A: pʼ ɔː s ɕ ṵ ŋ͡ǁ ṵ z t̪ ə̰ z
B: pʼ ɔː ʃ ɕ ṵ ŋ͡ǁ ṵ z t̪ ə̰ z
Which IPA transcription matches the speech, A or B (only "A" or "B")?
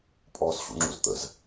A